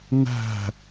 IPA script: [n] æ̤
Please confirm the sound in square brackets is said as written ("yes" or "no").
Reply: yes